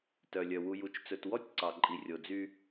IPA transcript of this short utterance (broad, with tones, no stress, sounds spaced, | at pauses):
t œ˨ lʲ œ˨ w u˨ j u˨ t͡ʃ t͡s ɵ˨ t w ɔ˦ tʲ ǀ ɑ˨ ǃʼ i˨ rʲ o˨ d͡z y˦